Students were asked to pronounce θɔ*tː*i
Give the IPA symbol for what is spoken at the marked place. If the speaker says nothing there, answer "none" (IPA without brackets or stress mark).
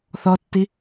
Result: tː